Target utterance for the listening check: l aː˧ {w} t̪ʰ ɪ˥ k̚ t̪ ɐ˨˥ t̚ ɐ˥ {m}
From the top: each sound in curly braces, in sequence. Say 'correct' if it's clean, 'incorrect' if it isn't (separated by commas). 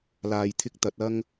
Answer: incorrect, incorrect